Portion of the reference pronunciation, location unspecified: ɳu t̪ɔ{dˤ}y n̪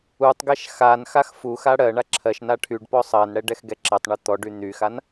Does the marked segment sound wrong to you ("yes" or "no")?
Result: yes